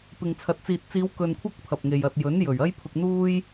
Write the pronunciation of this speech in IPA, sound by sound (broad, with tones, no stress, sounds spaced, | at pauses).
p ɪ˨ ŋ t͡sʰ ɐ˨ t̚ t͡s iː˨ t̚ t͡s iː˨˧ w k ɵ˨ n kʷʰ ɐ˧ k̚ pʰ ɐ˨ p̚ ŋ e˨ j ɐ˨ t̚ j ɵ˨˥ n j ɵ˨˩ ɥ ɐ˧ j pʰ ʊ˨ k̚ n̪ uː˧ j